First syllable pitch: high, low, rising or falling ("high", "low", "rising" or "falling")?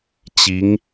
rising